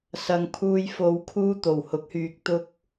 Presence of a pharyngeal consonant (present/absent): absent